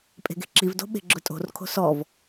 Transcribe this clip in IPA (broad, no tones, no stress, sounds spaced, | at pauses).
pʼ e̤ ɡ e̤ ǁ i v d o̤ ɓ e̤ ɡ͡ǁ ʊ tʼ o̤ r kʰ o̤ s ɔ v